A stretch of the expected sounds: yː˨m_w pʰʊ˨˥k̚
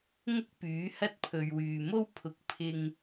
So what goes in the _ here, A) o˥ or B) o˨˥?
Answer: A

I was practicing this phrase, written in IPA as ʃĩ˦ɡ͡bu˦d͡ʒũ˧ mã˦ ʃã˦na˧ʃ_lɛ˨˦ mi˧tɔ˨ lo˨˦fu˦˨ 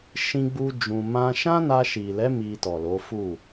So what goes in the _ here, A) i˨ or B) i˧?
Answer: A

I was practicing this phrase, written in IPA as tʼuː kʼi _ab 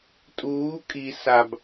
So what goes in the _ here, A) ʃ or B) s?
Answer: B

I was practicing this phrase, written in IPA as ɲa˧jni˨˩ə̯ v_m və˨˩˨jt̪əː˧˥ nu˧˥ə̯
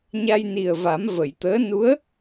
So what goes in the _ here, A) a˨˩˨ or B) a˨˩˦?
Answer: B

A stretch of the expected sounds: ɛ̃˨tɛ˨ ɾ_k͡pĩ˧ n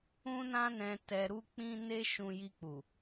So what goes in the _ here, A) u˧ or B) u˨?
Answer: A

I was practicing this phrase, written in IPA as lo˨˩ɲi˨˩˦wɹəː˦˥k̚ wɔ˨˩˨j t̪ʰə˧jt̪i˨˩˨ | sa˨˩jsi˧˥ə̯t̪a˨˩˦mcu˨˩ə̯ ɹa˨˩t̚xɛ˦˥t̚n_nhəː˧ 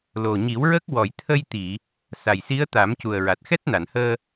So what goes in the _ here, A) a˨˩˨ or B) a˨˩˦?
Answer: A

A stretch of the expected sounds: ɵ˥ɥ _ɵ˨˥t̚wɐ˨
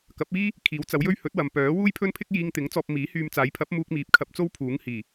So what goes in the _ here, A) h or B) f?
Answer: A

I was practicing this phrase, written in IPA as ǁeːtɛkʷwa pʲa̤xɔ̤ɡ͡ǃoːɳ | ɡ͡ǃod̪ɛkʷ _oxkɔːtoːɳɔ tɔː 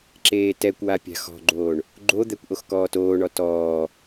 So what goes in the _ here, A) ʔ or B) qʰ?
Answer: A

